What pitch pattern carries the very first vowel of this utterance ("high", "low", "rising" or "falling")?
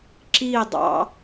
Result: falling